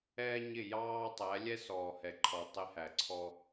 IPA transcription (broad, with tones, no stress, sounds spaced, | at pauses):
ɛː˦ ɲ ɪ˦˨ j ɑː˦ tˤ æ˨˦ lʲ ɛ˦ s ɔː˨ h ɛ˨ ǃʰ ɔ˨ tˤ ɪ˦ h æ˨ ǀʰ ɔ˦